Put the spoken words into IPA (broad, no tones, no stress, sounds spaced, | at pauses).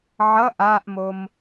ʕ ʌ ʔ a ʔ m o m